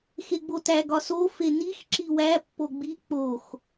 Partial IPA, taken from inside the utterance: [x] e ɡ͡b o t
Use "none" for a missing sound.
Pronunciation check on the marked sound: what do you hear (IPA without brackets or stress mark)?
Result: x